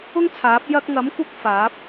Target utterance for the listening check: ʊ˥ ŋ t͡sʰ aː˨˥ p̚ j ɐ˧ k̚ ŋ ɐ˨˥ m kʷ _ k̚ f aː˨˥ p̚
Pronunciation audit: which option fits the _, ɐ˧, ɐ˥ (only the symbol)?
ɐ˧